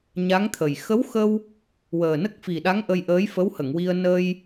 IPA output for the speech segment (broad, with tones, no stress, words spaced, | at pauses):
ɲa˧˥ŋt̪ʰə˨˩j xə˧˥wxə˧w | wəː˨˩nə˦˥k̚fi˨˩ɗa˧˥ŋ ʔə˧jʔəː˧˥j fə˧˥whə˨˩˨ŋwi˧ə̯ nə˧j